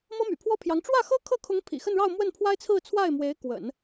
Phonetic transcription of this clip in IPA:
m ɤ˥ m y̰˨˩ pʰ w ɔ˥ pʰ j ɑ˧˥ ŋ ʈ͡ʂ w ä˥˩ x ɤ˥ kʰ ɤ˥˩ kʰ ʊ˧˥ ŋ pʰ ḭ˨˩ x ə˥˧ n ɻ ɑ˥˧ ʊ̯ m w ə˥˩ n pʰ w a˥ ɪ̯ t͡sʰ ɹ̩˥˧ t͡sʰ w a˥˩ ɪ̯ m w e˧˥ ɪ̯ k w ə̰˨˩˦ n

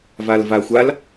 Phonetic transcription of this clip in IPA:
v a l v a xʷ a l

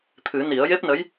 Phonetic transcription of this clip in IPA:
t̪ʰ ɨ˨˩˦ n i˨˩˦ ə̯ j e˦˥ p̚ n ə˧˥ j

